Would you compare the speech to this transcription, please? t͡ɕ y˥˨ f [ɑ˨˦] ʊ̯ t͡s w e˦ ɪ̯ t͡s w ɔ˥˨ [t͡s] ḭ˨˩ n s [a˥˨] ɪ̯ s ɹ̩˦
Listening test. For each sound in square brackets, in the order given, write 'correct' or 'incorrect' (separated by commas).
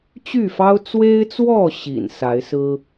incorrect, incorrect, incorrect